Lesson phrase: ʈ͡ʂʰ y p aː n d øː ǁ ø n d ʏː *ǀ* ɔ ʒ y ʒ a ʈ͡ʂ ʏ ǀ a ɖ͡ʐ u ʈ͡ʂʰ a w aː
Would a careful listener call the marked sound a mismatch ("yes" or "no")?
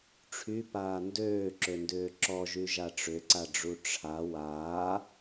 yes